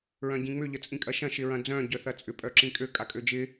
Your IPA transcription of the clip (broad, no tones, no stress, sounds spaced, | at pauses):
ɹ œ̃ ɟ ĩ ŋ͡m ʏ ʎ ə t͡sʼ ĩ kʼ ɐ ʃ ɐ̃ ʃ ɪ ɹ ɐ̃ d͡z œ̃ ɟ œ θ ɐ t͡sʼ ʏ pʼ œ ǁ ĩ kʼ ø kʼ a kʼ ø d͡ʒ ɪ